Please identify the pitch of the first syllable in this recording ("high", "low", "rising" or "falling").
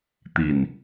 low